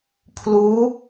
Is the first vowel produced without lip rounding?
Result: no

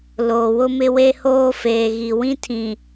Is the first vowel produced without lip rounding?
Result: no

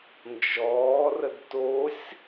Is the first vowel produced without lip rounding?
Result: no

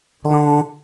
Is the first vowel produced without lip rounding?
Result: no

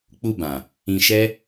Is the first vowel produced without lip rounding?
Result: no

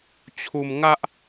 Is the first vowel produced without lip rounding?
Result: no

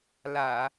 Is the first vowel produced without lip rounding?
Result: yes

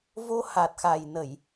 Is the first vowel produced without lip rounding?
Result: no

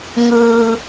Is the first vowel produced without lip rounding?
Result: yes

